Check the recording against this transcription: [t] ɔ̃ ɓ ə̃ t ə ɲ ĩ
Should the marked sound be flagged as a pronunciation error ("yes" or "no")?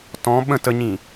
no